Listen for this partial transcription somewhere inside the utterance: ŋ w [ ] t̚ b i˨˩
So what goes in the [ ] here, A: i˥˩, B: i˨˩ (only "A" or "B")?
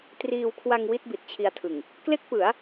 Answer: A